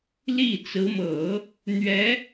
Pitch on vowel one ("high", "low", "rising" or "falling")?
falling